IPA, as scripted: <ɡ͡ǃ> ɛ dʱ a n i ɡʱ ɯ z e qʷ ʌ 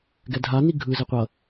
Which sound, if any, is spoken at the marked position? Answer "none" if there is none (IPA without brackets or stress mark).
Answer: ɡ